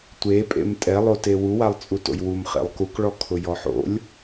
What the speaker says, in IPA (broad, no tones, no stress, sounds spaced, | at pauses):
tʷ e pʼ ḛ m tʼ ɛ lˠ o t e w u w a lˠ t͡sʼ u t o̰ j w u m χ ḛ lˠ k u k ɭ ɔ kʰ ʊ j ɔ ħ o̰ lʲ